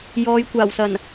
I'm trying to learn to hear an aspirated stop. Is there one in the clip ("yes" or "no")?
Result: no